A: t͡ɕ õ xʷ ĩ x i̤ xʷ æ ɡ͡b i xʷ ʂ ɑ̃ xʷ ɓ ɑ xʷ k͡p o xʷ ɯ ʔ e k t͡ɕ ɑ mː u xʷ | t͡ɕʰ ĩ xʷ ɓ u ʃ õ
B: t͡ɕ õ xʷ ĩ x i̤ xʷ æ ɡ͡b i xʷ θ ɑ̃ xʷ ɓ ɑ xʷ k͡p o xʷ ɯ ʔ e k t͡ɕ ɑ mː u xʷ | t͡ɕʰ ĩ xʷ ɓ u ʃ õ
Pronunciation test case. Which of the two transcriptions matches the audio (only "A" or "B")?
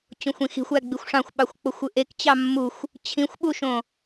A